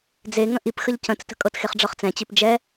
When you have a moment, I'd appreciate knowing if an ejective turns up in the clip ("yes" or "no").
yes